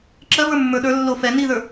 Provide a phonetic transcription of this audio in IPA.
ǁɜvə˞mːə˞ ɗə˞ lːo fɛ niðə˞

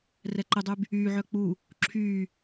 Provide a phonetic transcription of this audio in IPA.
rɛǃɪdˤyb | yːʕœ k͡pu | ǁʰyː

